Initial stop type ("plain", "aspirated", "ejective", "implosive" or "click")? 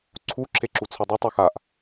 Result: click